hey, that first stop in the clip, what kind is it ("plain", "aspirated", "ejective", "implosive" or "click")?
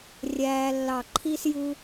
click